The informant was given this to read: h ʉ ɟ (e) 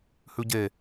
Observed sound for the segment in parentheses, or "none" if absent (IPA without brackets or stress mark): e